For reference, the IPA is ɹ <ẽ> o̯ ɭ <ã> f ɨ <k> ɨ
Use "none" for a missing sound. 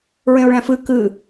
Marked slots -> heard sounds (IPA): ẽ, æ̃, k

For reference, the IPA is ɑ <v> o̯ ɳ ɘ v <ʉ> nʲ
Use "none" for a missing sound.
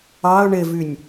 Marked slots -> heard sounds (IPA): none, ʉ

